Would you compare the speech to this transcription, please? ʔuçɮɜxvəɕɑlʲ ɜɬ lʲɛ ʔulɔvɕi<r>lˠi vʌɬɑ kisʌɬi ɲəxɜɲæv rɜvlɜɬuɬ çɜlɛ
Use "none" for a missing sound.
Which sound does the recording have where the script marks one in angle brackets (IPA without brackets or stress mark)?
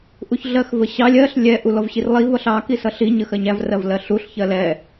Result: r